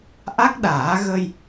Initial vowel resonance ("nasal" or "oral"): oral